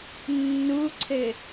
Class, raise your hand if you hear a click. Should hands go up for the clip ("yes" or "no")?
yes